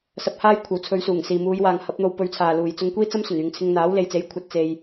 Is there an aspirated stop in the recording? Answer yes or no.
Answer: yes